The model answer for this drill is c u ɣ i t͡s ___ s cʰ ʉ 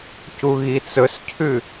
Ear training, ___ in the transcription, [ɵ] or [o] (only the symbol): ɵ